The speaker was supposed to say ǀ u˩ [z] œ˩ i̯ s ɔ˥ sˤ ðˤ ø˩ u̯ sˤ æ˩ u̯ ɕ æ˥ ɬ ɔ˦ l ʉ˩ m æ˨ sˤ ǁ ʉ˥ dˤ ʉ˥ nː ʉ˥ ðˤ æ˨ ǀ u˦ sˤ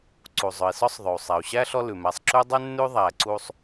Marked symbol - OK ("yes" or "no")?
no